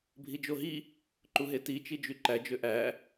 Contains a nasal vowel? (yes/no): no